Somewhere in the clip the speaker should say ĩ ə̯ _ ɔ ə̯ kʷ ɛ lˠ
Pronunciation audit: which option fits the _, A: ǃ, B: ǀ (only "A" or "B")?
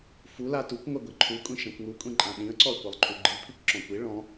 B